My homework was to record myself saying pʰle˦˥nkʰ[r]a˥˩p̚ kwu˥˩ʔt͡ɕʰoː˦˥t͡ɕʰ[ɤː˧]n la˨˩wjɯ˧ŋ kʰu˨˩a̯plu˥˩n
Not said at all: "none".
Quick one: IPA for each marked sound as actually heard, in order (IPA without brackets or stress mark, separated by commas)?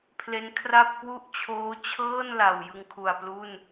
r, ɤː˥˩